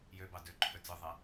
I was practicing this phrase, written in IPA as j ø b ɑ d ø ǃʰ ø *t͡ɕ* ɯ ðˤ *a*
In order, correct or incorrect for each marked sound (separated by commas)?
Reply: incorrect, incorrect